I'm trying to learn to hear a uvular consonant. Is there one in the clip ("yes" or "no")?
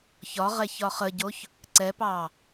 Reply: yes